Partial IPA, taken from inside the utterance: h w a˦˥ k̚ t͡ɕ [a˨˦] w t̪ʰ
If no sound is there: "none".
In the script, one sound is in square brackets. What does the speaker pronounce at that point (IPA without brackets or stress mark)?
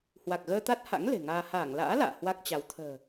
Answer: a˨˦